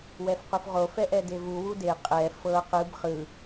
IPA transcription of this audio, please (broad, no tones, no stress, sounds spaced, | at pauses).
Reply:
w ɛ f q u f ʁ o f ɛ ʔ ɛ d e v u w u d e qʼ ɛ f ɤ q ɯ b χ ɯ